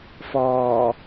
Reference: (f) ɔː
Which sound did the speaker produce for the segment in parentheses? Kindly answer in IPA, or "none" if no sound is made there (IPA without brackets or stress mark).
f